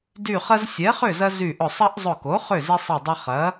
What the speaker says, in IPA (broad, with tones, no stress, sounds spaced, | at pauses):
d y˧˩ χ ɐ˦ z sʲ ɛ˩˥ χ ʏ˥˩ z ɐ˦ z y˧˩ ʔ ʊ˧˩ sˤ ɐ˦ ʔ zˤ ʊ˧˩ k o˩˥ χ ʏ˥˩ z i˦ sˤ i˧˩ dˤ ʊ˦ χ ɐ˩˥